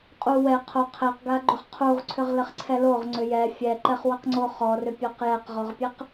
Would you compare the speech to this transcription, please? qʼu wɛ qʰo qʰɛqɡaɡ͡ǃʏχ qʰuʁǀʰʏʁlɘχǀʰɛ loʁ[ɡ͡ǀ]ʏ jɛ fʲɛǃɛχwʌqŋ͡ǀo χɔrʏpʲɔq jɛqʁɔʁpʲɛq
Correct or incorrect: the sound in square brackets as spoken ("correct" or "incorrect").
incorrect